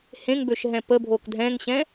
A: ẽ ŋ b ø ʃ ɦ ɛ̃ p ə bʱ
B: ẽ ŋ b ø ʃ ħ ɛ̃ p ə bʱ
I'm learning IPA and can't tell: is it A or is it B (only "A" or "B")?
A